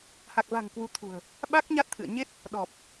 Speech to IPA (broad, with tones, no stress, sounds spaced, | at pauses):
h a˨˩ k̚ v a̤˨˩ ŋ k w u˨˦ t̪ʰ ṳ˨˩ ə̯ | ɓ a˦˥ k̚ ɲ a˦˥ t̚ t̪ʰ ɨ̰˧˨ ə̯ ɲ e˦˥ t̚ | ɗ ɔ˨˩ p̚